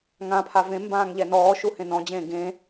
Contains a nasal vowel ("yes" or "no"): yes